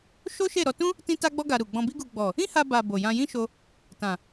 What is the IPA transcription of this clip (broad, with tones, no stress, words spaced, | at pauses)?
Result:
ʃo˦ʃe˦˨ ɾɔ˧tũ˦ | tĩ˦ta˦ɡ͡bɔ˦ɡa˧ ɾu˨ɡ͡bɔ̃˧bi˦ɡu˧ ɡ͡bɔ˨ | ĩ˦ha˧ba˨ bo˨jã˧jĩ˦ʃo˧ | tã˨